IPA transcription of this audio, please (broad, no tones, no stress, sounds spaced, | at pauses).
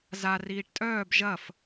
z a r iː ʈ tʼ œː b ʒ ɐ f